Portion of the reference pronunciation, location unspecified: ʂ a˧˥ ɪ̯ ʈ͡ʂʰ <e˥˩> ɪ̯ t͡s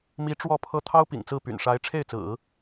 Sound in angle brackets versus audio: correct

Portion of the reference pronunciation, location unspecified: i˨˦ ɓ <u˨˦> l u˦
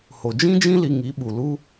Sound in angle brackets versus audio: incorrect: u˨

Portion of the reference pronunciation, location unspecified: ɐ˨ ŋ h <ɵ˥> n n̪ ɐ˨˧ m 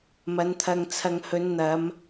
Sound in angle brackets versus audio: incorrect: ɵ˨˧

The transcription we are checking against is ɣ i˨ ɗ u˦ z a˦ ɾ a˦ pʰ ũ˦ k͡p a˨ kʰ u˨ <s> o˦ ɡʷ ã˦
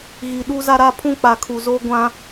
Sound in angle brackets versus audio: incorrect: z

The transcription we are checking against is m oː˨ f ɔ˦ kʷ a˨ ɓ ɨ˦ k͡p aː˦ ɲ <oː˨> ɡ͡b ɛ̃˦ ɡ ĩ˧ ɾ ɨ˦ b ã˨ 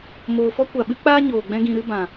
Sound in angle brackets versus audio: correct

